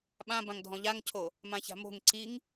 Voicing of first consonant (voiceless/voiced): voiced